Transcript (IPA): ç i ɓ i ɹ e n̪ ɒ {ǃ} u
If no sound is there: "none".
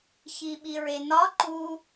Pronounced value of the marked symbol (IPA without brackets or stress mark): ǃ